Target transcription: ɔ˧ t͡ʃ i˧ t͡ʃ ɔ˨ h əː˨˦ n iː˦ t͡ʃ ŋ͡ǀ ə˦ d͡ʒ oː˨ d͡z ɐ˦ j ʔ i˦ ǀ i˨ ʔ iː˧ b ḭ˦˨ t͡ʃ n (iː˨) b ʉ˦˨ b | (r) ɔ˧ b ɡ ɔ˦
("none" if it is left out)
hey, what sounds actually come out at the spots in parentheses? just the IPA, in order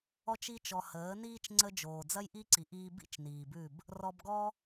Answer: iː˨, r

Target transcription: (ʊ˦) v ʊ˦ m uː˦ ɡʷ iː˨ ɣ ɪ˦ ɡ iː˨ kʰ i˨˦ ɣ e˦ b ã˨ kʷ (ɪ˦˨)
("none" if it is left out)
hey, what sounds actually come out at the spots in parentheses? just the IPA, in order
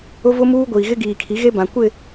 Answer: ʊ˦, ɪ˦˨

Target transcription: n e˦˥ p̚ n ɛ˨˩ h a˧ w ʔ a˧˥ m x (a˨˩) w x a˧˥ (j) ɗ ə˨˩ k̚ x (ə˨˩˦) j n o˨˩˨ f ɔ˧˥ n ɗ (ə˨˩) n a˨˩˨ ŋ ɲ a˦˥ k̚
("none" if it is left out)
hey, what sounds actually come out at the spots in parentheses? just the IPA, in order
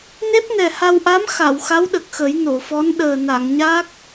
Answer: a˨˩˨, w, ə˨˩˦, əː˨˩

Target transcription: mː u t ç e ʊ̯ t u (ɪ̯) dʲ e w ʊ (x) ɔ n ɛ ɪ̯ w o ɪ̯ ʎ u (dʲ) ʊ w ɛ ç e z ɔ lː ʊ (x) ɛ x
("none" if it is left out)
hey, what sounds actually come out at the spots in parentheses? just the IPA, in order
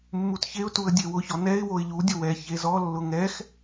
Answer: ə̯, ç, dʲ, ŋ

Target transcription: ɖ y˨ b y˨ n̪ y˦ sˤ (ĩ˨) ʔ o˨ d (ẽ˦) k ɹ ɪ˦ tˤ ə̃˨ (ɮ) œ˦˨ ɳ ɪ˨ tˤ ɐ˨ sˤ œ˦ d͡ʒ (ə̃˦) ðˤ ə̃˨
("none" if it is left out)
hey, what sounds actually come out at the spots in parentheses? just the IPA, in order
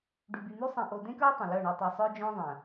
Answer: ĩ˨, ẽ˦, l, œ̃˦

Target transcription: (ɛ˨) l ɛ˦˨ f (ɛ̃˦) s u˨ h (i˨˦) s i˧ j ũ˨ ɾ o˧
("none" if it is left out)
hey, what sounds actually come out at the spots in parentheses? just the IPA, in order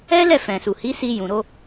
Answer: ɛ˦, ɛ̃˨, i˨˦

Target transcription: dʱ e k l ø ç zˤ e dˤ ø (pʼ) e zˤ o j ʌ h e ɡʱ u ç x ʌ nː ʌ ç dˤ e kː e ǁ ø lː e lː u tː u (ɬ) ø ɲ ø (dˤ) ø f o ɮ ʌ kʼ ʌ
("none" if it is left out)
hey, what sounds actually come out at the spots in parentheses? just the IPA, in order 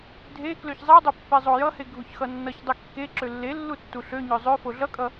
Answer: pː, ɬ, zˤ

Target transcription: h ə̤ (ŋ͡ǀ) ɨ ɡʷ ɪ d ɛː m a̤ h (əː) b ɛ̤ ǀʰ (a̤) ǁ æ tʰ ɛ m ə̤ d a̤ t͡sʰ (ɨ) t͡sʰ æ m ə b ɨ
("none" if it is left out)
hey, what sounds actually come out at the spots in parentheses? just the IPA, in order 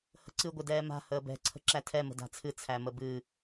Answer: ǀ, əː, ə̤, ɨ

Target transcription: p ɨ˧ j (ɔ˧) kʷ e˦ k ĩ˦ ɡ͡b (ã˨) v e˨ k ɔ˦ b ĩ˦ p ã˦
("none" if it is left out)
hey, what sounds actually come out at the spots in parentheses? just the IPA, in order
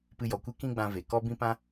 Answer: ɔ˨, ã˧

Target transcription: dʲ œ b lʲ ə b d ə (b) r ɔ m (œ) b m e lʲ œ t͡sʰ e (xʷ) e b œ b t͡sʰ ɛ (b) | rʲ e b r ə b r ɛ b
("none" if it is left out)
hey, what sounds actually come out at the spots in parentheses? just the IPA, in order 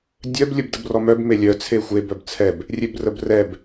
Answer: b, œ, xʷ, b

